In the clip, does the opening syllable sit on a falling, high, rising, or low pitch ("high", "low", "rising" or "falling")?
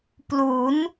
rising